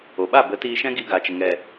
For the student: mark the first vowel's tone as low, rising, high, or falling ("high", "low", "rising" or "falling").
low